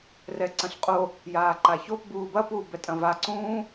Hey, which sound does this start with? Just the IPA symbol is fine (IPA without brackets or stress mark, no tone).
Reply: r